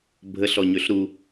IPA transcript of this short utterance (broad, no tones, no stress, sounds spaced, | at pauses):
bʱ ə ɬ ɔ ɲ ø ɬ ɾ u